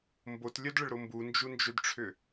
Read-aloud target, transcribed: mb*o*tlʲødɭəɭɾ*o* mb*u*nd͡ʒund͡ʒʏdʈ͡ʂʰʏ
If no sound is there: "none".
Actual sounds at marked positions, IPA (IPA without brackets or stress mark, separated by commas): o, o, u